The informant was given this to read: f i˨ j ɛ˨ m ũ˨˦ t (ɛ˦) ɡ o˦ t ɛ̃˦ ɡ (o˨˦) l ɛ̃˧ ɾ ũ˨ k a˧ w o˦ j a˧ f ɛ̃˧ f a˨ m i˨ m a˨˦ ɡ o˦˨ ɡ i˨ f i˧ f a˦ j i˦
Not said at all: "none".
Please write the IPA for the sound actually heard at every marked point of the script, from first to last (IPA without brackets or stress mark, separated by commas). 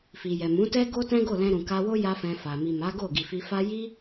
ɛ˦, o˦˨